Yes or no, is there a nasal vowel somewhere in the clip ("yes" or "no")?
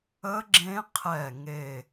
yes